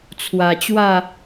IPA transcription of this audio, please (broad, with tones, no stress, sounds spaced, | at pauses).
t͡sʰ w a˨˩ t͡ɕ w a˥˧